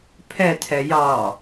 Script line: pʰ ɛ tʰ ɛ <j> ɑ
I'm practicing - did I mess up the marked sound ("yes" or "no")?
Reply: no